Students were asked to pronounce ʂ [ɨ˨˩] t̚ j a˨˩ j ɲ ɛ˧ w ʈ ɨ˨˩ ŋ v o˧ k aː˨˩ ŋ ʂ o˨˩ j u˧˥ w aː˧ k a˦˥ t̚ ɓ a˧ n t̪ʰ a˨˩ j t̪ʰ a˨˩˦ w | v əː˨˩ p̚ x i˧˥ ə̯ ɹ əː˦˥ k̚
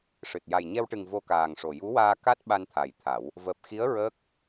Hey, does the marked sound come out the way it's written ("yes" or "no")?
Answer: yes